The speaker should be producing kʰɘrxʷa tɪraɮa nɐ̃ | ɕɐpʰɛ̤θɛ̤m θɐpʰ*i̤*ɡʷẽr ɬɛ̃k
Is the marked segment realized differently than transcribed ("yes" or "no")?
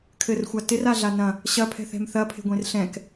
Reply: yes